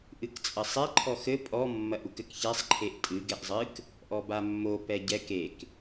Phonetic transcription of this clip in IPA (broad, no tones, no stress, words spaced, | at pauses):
ʔɨkt͡sʼɐsˤe ǃʰɔxɘ pʼɔ mːɐʔukɘkçɛsˤ ǃʰeʔtʼɨ ɡɛʔzˤɨk | ʔɔbamːo pɛɟɛk ek